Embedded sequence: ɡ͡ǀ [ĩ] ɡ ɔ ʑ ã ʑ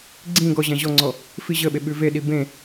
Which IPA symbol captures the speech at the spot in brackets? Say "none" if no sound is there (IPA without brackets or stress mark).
ĩ